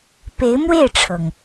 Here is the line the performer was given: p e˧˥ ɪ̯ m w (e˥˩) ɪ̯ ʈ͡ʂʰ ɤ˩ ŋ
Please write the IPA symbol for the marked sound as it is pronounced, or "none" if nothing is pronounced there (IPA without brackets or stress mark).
e˥˩